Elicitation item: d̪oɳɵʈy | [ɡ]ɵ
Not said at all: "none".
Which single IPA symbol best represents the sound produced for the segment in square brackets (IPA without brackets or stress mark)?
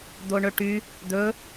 d̪